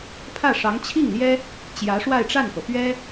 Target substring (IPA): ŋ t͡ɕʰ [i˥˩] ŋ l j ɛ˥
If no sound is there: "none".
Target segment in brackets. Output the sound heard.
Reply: i˥˩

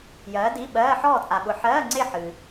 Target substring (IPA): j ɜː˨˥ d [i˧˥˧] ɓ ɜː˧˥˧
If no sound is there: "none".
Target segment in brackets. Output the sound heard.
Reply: i˧˥˧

